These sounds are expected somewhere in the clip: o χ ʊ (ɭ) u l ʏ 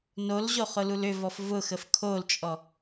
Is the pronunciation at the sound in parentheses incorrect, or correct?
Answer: incorrect